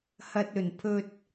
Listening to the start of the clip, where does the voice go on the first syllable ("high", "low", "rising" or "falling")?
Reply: low